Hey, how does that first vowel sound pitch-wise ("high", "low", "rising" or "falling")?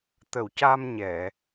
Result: low